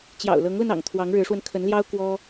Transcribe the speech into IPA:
t͡ɕ j ɑ̰˨˩ ʊ̯ l ɤ˧˥ ŋ l ə˧ n ɑ̰˨˩ ŋ t̪ʰ w ɑ˧˥ ŋ ɻ ɻ̩˧˥ ʂ w ə˧ n kʰ ə˧˥ n l j ɑ˥ ʊ̯ k w ɔ˥

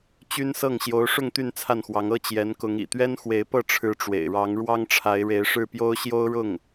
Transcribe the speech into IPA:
t͡ɕ y˥ n s ɤ˥˩ ŋ ɕ j o˧˥ ʊ̯ ʂ ʊ˥˧ ŋ t̪ y˥˧ n t͡sʰ a˥˩ n x w ɑ˧˥ ŋ ɤ˥˩ t͡ɕ j ɛ˧˥ n k ʊ˧˥ ŋ ḭ˨˩ t̪ ɥ ɛ˥ n x w e˧˥ ɪ̯ p ɤ˥˩ ʈ͡ʂʰ ɻ̩˧˥ ʈ͡ʂ w ḛ˨˩ ɪ̯ ɻ ɑ˧˥ ŋ ɻ w ɑ˥ ŋ ʈ͡ʂʰ a˧˥ ɪ̯ ɻ e˧˥ ɪ̯ ʂ ɻ̩˥˩ p j o˥ ʊ̯ ɕ j o˥ ʊ̯ ɻ ʊ˥˩ ŋ

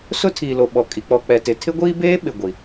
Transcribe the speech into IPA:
s ʊ˦ tʰ iː˨ l o˨ ɓ ɔ˨ kʼ i˨ k͡p ɔ˨ k͡p ɛ˨ t ɪ˨ tʰ ɪ˦ ɡʷ iː˦ b eː˦ ɓ ɪ˨ ɡʷ i˨

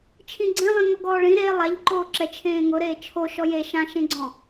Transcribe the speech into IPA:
t͡ʃʰ ĩ ɡ͡ǀ ẽ lˠ ĩ ŋ ɔ ɡ ɔː ɭ ĩ ɾ e lˠ a ʎ ǃ oː ǁ ɛ t͡ʃʰ ẽː ŋ ʊ ɾ eː t͡ʃʰ o ʃ ɔ j e ʃ ã ʃ ẽ ɡ͡ǀ ɔ̃

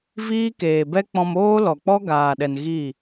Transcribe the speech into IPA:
v iː˦ k eː˨ b ɛ˦ k͡p ɔ̃˧ m oː˦ l ɔ˨ k͡p ɔ˦ ɡ aː˨ ɗ ɛ˨ n ɣ i˦˨

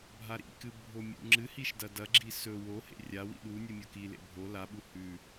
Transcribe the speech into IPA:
bʱ a ɾ ḭ k ɨ bʱ o mʲ ṵ ŋ͡ǁ ɨ h i ʃ d ɐ d ɐ ɡ͡ǁ i s ɵ w o h ḛ rʲ a w ḭ ɗ u nʲ ɨ mʲ o k i l ḛ bʱ o l a ɓ u h ʉ

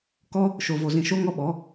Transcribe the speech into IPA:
k ɔ˦ | ʃ o˨ v o˨ z ĩ˨ ʃ o˧ ŋ ɔ˧ ɓ ɔ˨˦

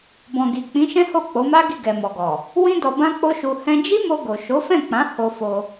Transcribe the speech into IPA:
b ɔ̃˨ ɡ i˨ k͡p ĩ˨˦ ʃ ɛ̃˦ h o˦˨ k͡p o˨˦ m a˦ ɡ i˦˨ ɡ ɛ˨ m ɔ˨ ɡ ɔ˨ | w ĩ˦ d ɔ˧ b ã˦ k͡p o˦ ʃ u˧ h ɛ̃˦ d͡ʒ i˦ m o˧ ɡ o˨ ʃ o˨˦ f ɛ̃˦˨ k͡p ã˨˦ h o˧ f o˧

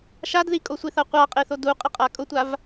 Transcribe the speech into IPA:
ʃ a d ð i kʼ o sʷ i θ a qʷ a qʼ e θ o d u qʼ ɪ qʼ a kʼ ʊ tʷ a v

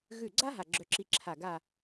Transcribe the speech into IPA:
ɣ ʉ˧˩ ɡ͡ǀ a˥ ɦ a˧˩ ɡ͡ǁ œ˧ ǁ i˧ ǁʰ a˧˩ ɡ a˥˧

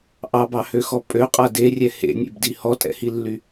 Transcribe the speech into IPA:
ʔ ɑ b ɑ h ø x ɔ pʼ ø qʼ a d e rʲ ɛ h ḛ nʲ ḛ b d i h ɔ tʼ ɛ̰ h i lː y

